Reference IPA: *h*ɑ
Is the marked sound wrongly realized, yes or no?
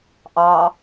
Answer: yes